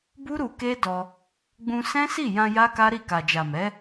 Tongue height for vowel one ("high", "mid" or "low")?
high